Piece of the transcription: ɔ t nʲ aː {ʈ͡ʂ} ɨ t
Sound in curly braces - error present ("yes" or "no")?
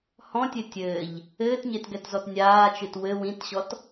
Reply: yes